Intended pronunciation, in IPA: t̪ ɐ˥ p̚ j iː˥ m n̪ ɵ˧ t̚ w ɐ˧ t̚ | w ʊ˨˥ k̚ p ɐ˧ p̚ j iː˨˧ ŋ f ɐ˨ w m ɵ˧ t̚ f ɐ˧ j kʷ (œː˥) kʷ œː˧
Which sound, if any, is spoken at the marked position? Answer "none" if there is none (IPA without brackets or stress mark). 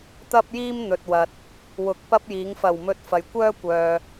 œː˥